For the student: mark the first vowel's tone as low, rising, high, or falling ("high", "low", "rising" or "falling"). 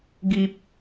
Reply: low